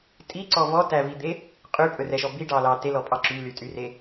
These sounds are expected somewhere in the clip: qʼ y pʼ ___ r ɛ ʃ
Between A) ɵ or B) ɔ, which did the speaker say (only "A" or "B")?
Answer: A